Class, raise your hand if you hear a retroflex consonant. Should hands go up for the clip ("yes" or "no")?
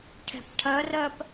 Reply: yes